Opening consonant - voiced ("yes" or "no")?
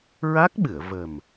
yes